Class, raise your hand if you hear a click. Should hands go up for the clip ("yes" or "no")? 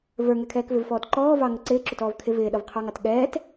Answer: yes